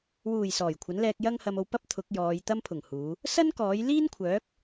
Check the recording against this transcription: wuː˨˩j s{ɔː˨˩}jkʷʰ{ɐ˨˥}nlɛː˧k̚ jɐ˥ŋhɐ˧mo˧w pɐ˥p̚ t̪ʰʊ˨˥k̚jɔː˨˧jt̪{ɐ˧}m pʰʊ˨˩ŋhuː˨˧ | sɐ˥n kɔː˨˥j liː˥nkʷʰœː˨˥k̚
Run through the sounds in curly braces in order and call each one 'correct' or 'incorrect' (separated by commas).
correct, correct, incorrect